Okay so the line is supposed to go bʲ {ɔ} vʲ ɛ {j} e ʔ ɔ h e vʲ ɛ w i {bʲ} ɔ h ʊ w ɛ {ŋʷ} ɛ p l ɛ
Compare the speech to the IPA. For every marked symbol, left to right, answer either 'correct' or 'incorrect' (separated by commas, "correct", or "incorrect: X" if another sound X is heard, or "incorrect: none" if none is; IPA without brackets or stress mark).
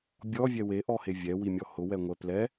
correct, incorrect: w, incorrect: mʲ, correct